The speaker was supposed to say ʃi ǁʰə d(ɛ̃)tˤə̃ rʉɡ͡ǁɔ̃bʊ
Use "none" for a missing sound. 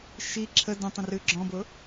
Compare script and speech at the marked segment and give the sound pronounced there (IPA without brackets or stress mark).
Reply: ə̃